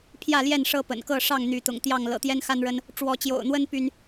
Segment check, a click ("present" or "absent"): absent